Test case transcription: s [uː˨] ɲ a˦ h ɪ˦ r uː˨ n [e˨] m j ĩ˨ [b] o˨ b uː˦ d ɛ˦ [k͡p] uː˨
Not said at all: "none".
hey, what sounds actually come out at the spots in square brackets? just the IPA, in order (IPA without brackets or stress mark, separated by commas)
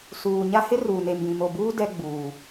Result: uː˨, e˨, m, ɡ͡b